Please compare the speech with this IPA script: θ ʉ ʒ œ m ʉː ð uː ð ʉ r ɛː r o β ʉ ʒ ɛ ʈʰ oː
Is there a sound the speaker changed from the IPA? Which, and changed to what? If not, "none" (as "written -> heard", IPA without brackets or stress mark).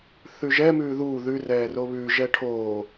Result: œ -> ɛ